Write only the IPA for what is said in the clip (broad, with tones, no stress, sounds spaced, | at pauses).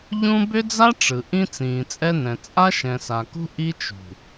ʎ ũ˦ b ʏ˦ d͡z a˦ ʈ͡ʂ ɯ˨ ʔ ĩ˦ t͡s ĩː˨ t͡sʼ ɛ˦ n ɛ̃˨ t͡sʼ a˦ ʃ ɛ̃˨ s a˨ k ṳ˦ ʔ i˦ t͡ʃ ṳ˨